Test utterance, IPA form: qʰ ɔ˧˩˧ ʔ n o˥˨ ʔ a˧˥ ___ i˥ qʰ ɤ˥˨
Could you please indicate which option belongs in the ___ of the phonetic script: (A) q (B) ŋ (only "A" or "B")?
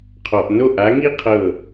B